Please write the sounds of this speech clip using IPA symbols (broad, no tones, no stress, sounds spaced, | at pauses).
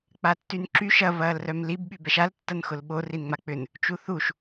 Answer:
k͡p a tː y n ǁ y ʃ ɐ v ɐː l r œ m l i b ɓ y b ɛ ʃ a l tː ɐ n x ʊ l ɓ o r i n ŋ͡m a k͡p ʏ n | t͡ʃ u θ u ʃ